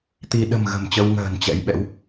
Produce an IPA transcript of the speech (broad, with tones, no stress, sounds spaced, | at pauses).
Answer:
t̪ i˧ ɗ ə̤˨˩ m ɣ ə̤˨˩ m t͡ɕ ə˧ w ŋ ə̤ː˨˩ n t͡ɕ ɛ̰˧˥ j ɓ ɛ̰˧˥ w